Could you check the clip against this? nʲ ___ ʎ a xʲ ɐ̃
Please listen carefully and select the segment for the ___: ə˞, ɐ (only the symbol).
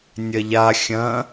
ɐ